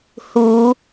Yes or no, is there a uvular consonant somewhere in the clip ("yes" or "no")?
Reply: no